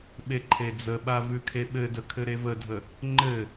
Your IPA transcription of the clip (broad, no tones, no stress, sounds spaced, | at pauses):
ɓ e ǃʰ e d͡z ə ɓ a v ʉ kʰ e ɓ ɘ d ə kʰ ɘ ɾ e v ə dʱ ə | ŋ͡ǃ ɘ